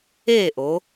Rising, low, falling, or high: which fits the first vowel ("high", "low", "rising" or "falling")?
falling